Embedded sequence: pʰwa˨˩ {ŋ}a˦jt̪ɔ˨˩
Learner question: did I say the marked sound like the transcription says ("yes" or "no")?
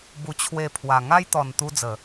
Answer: yes